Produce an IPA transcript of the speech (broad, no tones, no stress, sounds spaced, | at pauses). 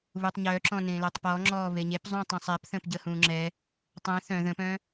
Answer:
β u tˤ ɲ œ ǁ ɔ̃ n ẽ l œ tˤ p ɔ ŋ͡ǁ ɔː β e ɲ e p zˤ ũ tˤ ɛ̃ sˤ ɛ p θ ə̃ː p ɟ ə h ũː ŋ͡ǁ ɛ | tˤ ɛ̃ θ œ̃ ð ə̃ p œ̃